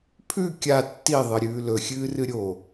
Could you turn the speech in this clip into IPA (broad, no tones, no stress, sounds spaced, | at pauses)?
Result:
pʰ ʉ kʲ a tː i ðˤ ɨ ɾʲ ʉː l ɵ xʲ ɨː r ɨ ɾʲ o